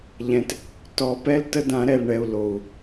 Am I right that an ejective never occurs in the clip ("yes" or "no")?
yes